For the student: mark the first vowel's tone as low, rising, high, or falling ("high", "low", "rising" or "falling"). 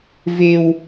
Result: high